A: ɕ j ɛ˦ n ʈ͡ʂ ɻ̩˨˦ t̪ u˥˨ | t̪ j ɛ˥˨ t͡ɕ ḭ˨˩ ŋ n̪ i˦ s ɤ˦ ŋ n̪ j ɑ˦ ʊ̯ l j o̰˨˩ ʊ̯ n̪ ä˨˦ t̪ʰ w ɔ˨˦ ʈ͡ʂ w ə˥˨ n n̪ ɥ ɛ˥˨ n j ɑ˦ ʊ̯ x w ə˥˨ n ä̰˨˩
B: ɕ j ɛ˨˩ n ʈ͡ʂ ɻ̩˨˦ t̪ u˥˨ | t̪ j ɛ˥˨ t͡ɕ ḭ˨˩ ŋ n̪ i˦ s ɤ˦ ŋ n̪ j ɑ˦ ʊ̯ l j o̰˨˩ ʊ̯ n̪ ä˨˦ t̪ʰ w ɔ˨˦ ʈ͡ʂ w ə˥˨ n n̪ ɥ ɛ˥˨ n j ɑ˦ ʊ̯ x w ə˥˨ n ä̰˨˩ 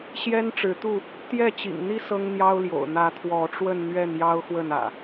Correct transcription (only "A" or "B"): A